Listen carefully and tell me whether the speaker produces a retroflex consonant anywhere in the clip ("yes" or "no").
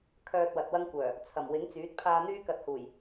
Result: no